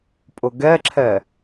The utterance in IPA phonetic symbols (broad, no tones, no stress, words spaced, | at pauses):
pʼʊɡɛǁʰɛ